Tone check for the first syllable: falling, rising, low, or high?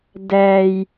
low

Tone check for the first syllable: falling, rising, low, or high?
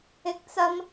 high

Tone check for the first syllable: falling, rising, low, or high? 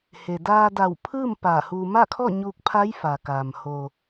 low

